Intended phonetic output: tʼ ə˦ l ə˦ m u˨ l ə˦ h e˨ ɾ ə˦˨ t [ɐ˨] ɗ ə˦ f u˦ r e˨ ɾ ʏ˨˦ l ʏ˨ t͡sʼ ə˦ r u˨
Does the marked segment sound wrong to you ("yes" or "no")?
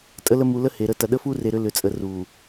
no